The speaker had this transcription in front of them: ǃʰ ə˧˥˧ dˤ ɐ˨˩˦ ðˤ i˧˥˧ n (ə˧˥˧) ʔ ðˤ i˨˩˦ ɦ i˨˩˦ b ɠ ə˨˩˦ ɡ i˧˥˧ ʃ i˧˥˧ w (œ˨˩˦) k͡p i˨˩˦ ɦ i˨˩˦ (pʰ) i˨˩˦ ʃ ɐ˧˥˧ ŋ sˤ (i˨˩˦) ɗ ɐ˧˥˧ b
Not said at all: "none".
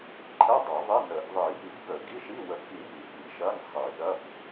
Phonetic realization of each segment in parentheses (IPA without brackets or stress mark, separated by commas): ə˨˩˦, ə˨˩˦, f, i˨˩˦